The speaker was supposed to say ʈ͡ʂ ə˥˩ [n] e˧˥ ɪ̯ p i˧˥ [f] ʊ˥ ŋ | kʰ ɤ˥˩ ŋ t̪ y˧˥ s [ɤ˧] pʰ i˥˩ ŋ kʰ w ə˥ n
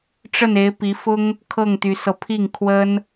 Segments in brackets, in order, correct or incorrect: correct, correct, correct

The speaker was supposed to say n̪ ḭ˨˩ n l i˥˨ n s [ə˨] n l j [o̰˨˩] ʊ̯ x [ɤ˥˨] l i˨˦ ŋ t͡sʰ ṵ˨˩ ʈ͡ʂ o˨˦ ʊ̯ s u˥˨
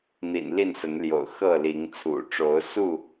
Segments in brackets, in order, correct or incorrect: incorrect: ə˨˦, correct, correct

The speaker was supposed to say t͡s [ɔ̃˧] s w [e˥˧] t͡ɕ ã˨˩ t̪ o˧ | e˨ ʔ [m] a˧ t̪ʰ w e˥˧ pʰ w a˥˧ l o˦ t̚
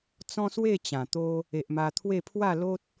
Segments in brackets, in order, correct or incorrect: incorrect: ɔ̃˦, correct, correct

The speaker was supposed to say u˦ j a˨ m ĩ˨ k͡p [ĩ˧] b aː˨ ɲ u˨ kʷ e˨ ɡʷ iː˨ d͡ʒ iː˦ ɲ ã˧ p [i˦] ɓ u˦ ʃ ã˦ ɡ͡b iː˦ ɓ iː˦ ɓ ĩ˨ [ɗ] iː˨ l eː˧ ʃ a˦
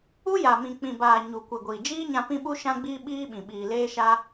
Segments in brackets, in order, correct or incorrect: incorrect: ĩ˨, incorrect: ĩ˦, incorrect: ɓ

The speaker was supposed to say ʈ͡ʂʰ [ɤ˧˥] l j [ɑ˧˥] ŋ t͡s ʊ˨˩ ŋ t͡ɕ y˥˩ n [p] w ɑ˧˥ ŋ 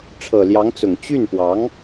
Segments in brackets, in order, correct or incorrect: incorrect: ɤ˨˩, correct, correct

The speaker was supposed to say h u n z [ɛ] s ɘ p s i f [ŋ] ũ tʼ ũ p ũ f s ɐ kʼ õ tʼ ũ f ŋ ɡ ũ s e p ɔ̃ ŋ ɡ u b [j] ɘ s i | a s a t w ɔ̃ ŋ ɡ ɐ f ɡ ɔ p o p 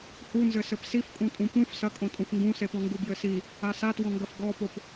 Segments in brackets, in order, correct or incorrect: incorrect: ɘ, incorrect: kʼ, correct

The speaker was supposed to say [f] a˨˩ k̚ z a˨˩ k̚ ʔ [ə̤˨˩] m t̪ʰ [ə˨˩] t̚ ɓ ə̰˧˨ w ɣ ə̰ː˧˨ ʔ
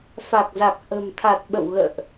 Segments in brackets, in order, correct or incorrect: correct, correct, incorrect: a˨˩

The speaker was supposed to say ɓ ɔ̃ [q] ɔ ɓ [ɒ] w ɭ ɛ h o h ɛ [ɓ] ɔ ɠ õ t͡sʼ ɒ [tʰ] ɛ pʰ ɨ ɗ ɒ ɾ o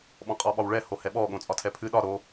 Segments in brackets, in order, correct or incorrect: incorrect: qʼ, correct, correct, correct

